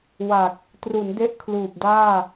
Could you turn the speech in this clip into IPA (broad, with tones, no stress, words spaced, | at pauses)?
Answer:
wa˨˩k̚ | tru˩˦nde˦˥ʔ kʰluː˨˩p̚daː˥˩